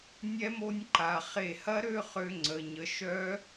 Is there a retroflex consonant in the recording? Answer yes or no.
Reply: no